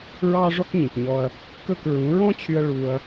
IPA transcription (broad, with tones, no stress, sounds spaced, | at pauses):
ɹ ɑː˥ ʐ ɔ˥ k ɲ ĩ˩ k ɲ ɔ˧ ɐ̯ | k ɵ˥˩ k ɹ ũ˩˥ ɹ ɔ̃˥ t͡ɕʰ y˧ ɐ̯ ɭ u˧ ɐ̯